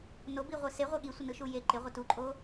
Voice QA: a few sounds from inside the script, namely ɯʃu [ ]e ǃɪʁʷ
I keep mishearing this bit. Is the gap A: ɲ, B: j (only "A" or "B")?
B